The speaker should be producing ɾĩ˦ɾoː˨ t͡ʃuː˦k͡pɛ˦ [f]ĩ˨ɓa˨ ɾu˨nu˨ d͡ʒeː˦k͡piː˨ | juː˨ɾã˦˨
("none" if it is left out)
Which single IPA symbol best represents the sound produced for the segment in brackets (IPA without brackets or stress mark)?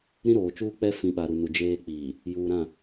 f